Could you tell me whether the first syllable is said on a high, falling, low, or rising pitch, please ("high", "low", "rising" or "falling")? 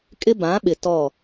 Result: high